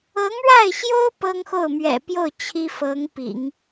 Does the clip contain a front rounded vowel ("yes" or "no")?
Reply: no